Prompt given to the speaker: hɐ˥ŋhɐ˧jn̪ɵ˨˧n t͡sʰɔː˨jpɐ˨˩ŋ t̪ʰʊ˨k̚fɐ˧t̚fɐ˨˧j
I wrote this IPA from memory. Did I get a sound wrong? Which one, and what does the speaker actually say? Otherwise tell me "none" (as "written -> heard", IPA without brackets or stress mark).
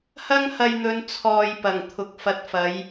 none